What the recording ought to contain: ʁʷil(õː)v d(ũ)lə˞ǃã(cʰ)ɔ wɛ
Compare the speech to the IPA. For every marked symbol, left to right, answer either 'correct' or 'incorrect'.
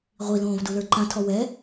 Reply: correct, incorrect: u, incorrect: tʰ

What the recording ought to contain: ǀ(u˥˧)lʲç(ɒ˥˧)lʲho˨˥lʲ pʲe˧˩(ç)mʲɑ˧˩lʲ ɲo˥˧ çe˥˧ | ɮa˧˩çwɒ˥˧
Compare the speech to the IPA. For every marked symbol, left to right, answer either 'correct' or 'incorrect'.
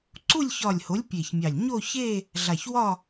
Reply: correct, incorrect: ɒ˧˩, correct

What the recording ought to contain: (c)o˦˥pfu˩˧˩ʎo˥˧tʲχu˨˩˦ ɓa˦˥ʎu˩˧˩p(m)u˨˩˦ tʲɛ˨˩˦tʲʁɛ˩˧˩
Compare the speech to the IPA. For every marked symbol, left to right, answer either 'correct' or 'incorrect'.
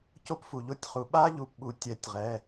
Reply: correct, incorrect: ɓ

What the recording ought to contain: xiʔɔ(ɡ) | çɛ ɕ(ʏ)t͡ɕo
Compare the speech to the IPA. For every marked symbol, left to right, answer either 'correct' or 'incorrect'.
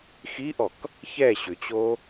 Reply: incorrect: k, correct

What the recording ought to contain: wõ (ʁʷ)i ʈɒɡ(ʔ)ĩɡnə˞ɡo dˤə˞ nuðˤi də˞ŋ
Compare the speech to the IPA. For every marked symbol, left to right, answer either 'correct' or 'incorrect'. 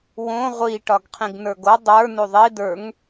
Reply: correct, incorrect: qʰ

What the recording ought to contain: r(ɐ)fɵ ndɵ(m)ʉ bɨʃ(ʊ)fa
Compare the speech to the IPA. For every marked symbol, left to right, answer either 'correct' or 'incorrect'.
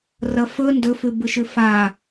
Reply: correct, incorrect: f, incorrect: ʉ

